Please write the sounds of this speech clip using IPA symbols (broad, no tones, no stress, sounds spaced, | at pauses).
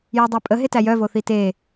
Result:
j æ dˤ æ pʼ ə ɦ e t æ j œ v o θ i t e